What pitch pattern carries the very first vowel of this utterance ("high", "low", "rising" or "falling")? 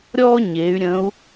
high